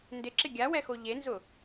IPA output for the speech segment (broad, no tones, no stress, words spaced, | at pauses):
ndɪǁɪ ɡʲawɛxo ʎenzʊ